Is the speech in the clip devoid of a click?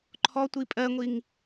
no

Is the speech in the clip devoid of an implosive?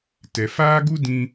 yes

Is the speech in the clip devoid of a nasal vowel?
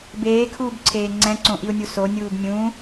no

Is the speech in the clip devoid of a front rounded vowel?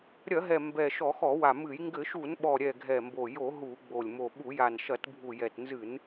yes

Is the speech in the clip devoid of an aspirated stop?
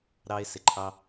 no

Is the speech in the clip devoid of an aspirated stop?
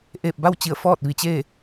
yes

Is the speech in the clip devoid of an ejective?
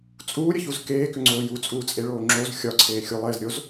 no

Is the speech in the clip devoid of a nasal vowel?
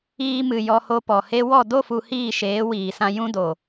no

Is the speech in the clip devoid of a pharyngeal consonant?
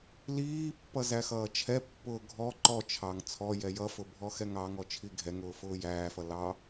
yes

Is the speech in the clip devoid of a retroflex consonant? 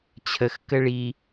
no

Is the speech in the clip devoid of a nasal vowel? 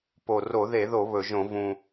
no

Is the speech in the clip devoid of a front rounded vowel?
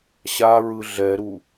yes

